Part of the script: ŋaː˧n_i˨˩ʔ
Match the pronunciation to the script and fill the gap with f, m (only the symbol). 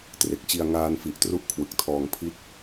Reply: f